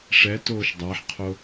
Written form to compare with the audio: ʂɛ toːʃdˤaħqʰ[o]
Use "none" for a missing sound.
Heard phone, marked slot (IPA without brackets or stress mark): o